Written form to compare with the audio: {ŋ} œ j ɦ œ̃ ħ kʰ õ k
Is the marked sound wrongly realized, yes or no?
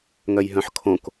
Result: no